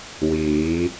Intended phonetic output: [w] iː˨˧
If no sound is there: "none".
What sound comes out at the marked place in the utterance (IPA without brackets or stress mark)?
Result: w